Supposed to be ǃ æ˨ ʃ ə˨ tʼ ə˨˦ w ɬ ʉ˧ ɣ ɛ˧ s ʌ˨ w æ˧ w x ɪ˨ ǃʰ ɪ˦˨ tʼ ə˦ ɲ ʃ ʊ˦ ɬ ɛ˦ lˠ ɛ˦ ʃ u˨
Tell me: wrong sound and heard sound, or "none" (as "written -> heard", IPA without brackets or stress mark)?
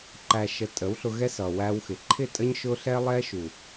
ʉ˧ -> ʊ˧